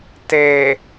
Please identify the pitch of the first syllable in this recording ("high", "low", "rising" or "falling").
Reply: low